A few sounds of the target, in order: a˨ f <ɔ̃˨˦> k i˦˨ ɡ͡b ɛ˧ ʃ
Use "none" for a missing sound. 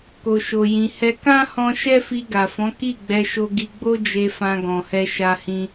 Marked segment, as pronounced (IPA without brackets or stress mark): ɔ̃˨˦